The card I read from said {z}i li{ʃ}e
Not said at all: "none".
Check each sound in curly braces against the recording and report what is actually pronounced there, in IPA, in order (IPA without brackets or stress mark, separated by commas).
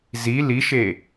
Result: z, ʃ